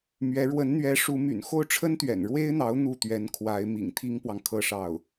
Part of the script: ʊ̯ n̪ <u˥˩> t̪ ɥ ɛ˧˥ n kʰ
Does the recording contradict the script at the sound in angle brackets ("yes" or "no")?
no